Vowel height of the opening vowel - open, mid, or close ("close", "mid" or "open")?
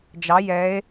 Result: open